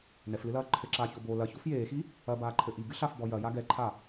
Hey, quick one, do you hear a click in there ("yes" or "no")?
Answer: yes